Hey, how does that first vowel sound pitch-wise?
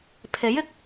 rising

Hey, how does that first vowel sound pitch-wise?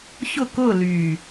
falling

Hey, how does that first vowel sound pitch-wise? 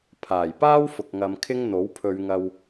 low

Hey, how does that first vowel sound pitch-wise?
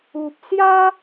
low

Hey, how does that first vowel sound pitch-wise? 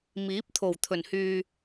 rising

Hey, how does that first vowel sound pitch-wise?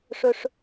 high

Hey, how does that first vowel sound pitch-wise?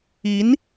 rising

